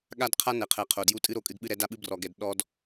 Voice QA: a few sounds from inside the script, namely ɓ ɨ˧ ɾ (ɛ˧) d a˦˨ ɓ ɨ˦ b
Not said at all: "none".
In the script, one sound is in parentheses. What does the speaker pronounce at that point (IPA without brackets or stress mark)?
ɛ˧